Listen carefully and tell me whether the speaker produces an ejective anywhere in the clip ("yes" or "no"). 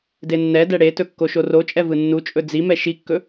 yes